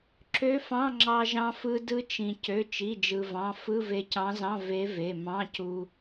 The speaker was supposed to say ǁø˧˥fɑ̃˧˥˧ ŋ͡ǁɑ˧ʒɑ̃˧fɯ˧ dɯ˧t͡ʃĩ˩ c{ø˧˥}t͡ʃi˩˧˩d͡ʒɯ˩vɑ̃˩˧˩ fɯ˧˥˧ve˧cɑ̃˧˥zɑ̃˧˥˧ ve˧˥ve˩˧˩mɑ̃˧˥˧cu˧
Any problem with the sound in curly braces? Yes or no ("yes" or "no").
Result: yes